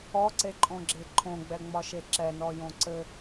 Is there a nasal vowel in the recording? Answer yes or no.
yes